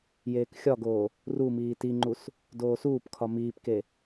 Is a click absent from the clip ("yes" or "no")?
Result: no